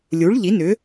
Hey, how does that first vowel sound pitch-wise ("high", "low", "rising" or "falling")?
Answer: rising